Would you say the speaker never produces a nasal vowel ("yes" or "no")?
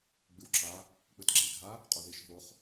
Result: yes